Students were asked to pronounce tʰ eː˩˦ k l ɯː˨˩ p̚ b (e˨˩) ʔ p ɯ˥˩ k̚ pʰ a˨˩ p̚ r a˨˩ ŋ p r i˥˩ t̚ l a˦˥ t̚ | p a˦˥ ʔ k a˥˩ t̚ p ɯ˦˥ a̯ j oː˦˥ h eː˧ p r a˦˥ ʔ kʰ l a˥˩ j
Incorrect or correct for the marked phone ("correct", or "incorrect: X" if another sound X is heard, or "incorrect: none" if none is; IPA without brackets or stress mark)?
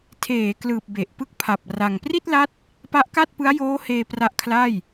correct